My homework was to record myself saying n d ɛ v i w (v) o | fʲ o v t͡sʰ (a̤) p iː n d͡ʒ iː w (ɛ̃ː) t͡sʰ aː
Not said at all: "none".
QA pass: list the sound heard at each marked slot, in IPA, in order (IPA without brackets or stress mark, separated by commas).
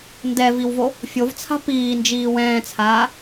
v, a̤, ɛ̃ː